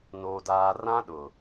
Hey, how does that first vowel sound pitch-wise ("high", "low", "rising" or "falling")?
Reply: low